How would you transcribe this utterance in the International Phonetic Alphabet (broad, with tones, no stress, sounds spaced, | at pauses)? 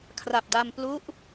kʰ r a˨˩ p̚ d a˧ m p l u˦˥ ʔ